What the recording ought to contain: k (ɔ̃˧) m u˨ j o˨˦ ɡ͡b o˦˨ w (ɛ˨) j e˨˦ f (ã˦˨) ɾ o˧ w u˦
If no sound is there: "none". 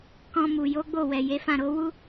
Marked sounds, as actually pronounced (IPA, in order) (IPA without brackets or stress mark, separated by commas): ɔ̃˧, ɛ˨, ã˦˨